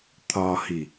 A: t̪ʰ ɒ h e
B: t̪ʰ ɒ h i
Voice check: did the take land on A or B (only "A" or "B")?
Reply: B